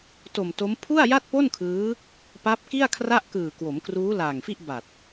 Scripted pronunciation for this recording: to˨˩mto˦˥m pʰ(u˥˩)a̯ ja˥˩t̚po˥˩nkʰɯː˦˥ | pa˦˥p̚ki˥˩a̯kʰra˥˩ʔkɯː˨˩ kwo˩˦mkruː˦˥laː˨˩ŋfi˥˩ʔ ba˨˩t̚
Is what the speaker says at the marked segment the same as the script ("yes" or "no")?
yes